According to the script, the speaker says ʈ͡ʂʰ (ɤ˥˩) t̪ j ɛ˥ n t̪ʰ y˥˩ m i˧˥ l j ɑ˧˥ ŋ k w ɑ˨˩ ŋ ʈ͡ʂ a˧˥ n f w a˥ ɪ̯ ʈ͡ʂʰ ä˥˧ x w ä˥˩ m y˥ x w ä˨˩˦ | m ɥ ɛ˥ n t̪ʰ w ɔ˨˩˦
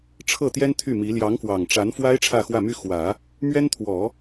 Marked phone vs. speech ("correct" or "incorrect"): correct